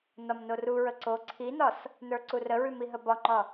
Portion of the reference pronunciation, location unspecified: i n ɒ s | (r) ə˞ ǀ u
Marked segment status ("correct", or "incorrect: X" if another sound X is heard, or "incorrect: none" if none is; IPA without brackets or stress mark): incorrect: n